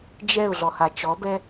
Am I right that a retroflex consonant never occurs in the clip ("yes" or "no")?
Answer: yes